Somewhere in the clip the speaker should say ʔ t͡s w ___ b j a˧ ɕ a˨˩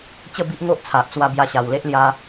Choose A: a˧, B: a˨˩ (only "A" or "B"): A